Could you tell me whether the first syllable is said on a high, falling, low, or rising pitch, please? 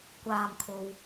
low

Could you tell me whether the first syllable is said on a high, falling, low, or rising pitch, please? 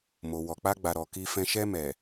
low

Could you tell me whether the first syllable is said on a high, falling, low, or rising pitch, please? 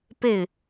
falling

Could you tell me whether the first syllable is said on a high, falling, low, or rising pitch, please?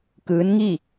rising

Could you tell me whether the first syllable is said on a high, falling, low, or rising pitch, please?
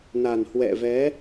low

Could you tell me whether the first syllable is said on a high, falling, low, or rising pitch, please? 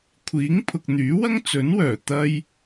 rising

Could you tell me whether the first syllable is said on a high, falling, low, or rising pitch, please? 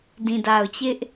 low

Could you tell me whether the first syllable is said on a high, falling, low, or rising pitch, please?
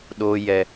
low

